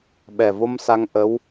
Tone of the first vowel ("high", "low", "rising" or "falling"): low